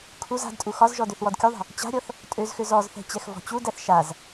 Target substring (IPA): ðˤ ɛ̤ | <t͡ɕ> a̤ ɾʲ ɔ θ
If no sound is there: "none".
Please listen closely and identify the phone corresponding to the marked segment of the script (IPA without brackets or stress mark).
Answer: t͡ɕ